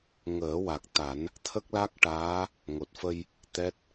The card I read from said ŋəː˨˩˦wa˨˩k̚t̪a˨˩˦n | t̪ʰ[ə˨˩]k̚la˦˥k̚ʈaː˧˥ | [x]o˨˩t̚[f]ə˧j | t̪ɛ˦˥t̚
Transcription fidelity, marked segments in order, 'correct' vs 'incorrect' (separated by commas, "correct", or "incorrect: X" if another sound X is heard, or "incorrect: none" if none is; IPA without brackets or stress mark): incorrect: ə˦˥, incorrect: ŋ, correct